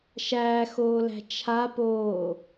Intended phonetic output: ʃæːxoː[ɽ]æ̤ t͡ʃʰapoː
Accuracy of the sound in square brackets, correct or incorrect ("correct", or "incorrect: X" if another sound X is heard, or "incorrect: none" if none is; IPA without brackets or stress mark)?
incorrect: l